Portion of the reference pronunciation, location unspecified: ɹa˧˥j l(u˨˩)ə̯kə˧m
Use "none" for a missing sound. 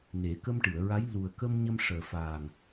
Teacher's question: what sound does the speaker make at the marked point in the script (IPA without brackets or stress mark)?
u˨˩